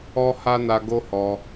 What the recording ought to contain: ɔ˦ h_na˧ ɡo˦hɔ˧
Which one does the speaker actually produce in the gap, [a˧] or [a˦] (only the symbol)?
a˦